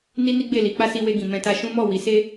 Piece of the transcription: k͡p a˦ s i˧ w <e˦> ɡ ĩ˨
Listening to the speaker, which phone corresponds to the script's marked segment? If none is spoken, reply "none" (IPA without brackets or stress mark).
e˧